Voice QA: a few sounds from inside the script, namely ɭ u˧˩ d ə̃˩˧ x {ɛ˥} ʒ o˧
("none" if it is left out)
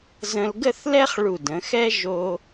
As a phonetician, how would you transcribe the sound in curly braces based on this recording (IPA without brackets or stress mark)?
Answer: ɛ˥